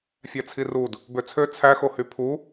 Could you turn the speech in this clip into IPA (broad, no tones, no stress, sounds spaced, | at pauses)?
fʲ æ t͡sʰ i r u d | b ø t͡sʰ ø t͡sʰ æ x o h y pʰ u